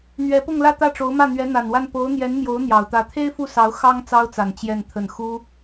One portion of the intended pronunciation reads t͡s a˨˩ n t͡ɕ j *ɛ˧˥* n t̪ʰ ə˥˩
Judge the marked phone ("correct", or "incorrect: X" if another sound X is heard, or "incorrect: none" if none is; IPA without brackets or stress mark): incorrect: ɛ˥˧